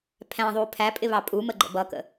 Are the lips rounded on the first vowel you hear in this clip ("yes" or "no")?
no